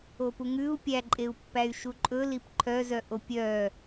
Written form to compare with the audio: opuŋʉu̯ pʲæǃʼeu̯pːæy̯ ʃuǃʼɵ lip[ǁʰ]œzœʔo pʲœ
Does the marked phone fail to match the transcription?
yes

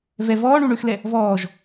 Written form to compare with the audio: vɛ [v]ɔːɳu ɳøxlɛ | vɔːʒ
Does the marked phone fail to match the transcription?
no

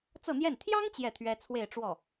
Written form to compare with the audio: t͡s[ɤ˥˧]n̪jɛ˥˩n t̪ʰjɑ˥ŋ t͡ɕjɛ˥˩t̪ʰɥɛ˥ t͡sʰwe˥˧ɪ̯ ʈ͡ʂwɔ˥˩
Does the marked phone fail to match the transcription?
no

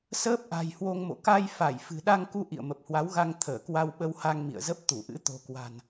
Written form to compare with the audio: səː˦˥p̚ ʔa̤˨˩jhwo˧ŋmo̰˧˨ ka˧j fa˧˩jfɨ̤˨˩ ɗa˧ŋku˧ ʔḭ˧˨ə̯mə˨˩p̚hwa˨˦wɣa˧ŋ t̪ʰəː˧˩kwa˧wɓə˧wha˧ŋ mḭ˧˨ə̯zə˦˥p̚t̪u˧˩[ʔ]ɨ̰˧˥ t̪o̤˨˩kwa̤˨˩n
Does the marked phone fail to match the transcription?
no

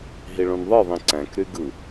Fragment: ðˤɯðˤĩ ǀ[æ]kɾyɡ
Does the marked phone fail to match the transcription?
yes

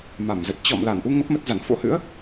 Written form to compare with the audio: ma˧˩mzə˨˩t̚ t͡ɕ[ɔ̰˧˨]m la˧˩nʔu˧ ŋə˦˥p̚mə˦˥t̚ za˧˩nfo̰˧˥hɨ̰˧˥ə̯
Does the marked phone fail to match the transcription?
no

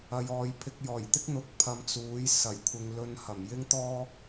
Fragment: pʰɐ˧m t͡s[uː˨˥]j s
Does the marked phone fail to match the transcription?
no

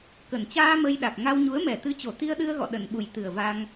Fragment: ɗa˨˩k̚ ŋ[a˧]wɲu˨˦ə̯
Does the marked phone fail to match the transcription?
no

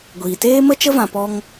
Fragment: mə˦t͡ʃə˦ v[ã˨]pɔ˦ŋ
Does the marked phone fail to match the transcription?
yes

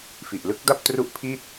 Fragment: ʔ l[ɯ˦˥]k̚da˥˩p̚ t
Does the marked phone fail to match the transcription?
no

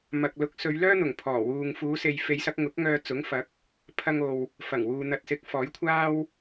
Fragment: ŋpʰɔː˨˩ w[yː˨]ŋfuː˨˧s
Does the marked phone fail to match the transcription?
yes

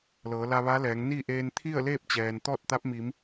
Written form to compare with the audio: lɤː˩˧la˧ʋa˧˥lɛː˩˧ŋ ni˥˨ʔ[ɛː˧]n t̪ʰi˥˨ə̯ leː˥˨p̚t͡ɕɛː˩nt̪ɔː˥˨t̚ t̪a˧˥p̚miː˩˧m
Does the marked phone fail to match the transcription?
yes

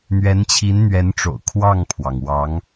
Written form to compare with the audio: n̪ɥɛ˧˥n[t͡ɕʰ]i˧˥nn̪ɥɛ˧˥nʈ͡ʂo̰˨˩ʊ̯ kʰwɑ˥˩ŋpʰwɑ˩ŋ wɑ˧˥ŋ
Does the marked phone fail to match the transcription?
no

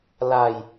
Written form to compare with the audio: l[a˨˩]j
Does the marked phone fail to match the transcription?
yes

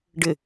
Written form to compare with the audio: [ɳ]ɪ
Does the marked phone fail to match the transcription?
yes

